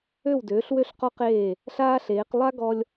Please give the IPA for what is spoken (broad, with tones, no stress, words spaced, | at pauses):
ø˥˩wdøː˩˥ɬwø˥˩ɬ qɔ˥qeː˥˩ | ɬaː˥ɬeː˩˥q lˠa˥ ɡɔ˥lʲ